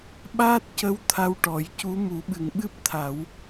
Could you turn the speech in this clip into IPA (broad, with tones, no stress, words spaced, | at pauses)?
ɓaː˦˥t̚cə˧˥w t̪ʰa˧wʈɔ˨˩˦jcu˧˥ mu˨˩˦ɓɨ˨˩ŋɓɨ˦˥p̚t̪ʰa˨˩˦w